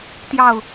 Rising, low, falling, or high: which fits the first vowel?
falling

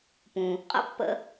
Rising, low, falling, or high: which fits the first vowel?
low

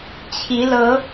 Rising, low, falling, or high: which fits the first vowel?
rising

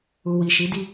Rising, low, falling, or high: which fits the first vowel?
low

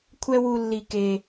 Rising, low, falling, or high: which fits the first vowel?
high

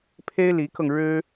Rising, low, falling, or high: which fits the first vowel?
high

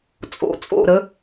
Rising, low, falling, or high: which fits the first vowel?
low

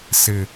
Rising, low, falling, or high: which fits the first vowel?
low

